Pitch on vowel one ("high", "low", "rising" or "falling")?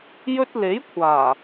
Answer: high